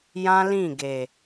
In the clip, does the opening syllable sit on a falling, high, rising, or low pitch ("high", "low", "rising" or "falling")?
high